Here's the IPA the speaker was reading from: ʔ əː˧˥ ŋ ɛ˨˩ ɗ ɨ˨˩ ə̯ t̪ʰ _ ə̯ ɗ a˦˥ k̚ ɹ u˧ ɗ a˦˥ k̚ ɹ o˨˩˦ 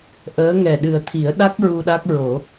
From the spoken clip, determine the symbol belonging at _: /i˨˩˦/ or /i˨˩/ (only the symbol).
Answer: i˨˩˦